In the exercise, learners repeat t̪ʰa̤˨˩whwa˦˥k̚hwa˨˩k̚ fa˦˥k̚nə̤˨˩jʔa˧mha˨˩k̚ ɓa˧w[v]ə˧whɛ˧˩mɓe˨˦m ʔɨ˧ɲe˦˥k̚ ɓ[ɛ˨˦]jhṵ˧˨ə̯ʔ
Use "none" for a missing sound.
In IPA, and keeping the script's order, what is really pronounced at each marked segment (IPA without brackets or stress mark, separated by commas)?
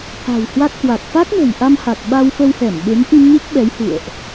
f, ɛ˨˦